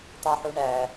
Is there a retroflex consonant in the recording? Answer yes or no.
yes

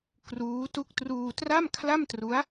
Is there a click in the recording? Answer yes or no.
no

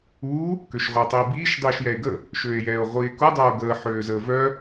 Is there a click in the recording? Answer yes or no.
no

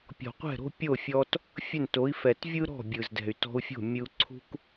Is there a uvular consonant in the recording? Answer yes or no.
yes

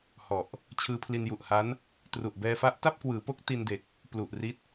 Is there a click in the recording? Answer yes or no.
no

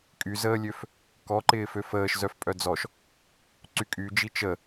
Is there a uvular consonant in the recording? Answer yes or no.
no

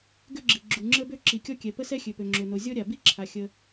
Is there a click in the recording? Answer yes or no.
yes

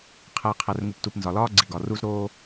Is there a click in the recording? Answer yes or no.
yes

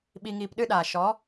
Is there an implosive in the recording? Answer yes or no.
yes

